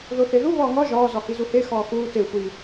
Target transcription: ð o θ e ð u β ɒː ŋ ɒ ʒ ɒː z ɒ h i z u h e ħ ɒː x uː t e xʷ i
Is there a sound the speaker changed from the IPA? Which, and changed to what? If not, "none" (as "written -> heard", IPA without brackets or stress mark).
ħ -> x